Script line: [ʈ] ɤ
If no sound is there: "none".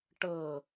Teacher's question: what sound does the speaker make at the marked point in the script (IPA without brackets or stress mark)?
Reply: ʈ